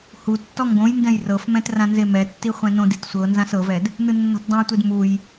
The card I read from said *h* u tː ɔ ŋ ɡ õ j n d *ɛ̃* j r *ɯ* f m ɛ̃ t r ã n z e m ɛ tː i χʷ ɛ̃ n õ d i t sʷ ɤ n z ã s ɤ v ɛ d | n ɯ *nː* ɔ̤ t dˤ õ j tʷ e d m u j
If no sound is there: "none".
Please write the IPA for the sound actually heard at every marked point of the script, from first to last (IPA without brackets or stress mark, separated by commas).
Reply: h, ɛ̃, ɤ, nː